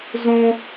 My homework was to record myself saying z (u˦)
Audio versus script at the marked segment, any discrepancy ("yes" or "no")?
yes